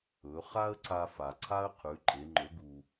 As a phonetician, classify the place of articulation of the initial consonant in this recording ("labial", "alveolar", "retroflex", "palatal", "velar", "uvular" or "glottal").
uvular